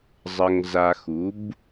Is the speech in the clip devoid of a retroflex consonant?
yes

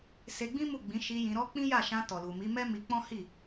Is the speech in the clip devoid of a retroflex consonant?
yes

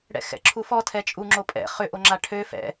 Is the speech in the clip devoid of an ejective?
no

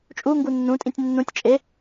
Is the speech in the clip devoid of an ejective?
no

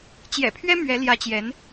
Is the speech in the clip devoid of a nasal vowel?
yes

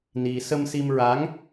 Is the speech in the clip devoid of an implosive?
yes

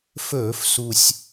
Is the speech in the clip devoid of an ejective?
yes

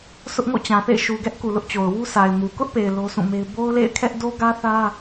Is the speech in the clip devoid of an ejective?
yes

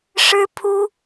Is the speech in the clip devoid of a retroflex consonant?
no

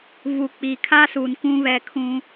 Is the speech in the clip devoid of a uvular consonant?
yes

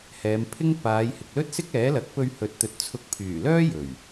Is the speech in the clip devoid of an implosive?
yes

